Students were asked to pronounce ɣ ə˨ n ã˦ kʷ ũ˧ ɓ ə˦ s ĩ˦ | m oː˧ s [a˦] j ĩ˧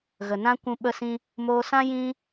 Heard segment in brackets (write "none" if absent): ã˦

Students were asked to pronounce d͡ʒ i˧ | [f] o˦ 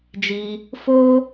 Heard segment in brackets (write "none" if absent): f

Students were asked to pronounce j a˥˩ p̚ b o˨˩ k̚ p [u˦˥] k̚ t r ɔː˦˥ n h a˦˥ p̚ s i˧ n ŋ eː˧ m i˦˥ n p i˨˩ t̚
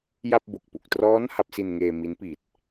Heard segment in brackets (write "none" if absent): u˨˩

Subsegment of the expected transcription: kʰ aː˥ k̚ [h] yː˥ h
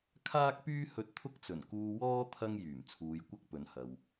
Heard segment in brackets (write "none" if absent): p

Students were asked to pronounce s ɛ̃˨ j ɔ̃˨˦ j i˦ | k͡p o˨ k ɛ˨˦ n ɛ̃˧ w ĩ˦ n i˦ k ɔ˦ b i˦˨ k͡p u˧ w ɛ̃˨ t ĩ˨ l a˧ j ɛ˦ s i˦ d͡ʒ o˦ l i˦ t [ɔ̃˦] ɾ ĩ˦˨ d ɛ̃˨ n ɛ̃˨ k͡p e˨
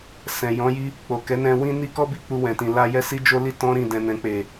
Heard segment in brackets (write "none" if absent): ɔ̃˦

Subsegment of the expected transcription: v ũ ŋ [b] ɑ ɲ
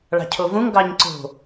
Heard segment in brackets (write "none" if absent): ɡ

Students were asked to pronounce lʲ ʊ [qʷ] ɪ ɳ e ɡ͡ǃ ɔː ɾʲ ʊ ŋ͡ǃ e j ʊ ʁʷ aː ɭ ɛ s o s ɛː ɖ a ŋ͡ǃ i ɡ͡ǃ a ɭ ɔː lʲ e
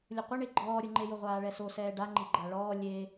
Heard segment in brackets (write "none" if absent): qʷ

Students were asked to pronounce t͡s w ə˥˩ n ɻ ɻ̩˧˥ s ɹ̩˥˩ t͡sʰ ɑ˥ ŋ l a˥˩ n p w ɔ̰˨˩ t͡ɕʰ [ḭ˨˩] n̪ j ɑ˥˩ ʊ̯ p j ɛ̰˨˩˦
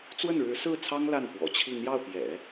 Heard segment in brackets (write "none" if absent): i˥˧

